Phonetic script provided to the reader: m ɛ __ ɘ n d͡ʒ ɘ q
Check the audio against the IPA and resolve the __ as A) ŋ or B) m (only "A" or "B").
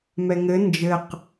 A